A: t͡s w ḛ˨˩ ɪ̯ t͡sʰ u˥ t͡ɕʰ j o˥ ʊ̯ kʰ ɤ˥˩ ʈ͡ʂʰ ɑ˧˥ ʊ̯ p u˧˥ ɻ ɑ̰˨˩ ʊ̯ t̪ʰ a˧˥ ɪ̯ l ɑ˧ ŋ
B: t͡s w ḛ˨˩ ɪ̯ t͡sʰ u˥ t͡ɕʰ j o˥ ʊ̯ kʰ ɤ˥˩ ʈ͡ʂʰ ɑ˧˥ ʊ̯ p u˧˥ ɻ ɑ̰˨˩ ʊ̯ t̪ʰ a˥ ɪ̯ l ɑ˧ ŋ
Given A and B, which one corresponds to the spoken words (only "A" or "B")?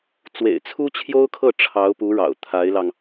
A